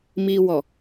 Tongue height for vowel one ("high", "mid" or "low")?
high